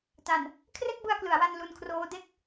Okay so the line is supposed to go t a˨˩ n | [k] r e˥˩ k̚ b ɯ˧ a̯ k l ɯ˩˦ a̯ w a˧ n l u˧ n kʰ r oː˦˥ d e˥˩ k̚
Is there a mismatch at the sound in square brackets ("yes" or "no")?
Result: yes